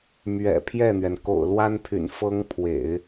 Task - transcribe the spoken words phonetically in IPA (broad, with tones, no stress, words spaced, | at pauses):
mɥɛ̰˨˩pʰjɛ˥˩n̪ɥɛ˩n ko̰˨˩ʊ̯lwa˥npʰy̰˨˩n fɤ˥ŋpʰwḛ˨˩˦ɪ̯